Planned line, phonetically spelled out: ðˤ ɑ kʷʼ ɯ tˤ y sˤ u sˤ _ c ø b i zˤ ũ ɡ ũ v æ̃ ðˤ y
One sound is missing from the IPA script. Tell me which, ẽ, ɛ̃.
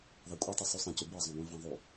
ẽ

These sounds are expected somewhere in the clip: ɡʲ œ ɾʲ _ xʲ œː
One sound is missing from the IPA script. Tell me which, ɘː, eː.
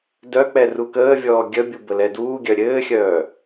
ɘː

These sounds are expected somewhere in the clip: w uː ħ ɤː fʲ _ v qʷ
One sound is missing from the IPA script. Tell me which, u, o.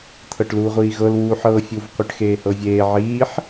u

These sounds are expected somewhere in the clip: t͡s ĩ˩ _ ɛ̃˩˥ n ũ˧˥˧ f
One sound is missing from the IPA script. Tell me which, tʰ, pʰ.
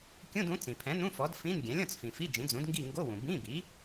pʰ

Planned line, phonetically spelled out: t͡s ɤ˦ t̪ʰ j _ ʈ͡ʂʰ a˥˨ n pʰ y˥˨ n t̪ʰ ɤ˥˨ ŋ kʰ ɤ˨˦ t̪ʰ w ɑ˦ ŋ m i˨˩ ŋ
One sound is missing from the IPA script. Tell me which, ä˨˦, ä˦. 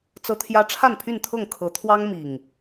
ä˦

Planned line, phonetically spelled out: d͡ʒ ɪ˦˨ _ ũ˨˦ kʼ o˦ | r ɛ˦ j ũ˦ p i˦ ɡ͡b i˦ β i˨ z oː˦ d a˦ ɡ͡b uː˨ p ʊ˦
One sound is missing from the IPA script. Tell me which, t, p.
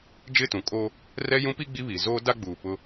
t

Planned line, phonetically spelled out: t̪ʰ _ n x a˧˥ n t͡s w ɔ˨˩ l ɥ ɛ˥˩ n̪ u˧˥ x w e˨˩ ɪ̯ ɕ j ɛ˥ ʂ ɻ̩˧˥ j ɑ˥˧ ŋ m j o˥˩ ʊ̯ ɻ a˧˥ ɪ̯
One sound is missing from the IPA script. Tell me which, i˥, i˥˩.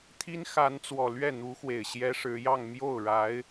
i˥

